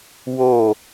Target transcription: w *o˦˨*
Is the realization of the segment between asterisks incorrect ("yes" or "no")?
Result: no